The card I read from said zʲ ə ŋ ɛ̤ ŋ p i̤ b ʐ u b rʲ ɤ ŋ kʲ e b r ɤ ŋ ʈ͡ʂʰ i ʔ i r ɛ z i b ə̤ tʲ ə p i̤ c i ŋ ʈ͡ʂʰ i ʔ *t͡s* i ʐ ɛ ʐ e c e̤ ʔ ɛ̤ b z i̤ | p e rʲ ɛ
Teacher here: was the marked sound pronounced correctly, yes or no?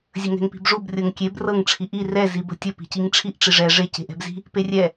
no